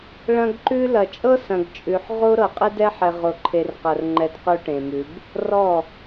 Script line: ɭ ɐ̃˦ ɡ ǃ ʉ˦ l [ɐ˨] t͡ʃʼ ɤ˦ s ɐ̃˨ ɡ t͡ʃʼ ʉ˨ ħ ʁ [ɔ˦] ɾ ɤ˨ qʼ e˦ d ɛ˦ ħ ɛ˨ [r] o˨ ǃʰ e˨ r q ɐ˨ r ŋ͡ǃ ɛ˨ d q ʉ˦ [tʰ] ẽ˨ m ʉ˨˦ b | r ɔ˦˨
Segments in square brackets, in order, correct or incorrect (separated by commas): correct, incorrect, incorrect, incorrect